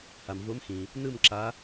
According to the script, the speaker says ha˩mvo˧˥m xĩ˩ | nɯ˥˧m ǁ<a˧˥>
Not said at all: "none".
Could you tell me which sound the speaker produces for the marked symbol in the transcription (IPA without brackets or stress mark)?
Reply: a˧˥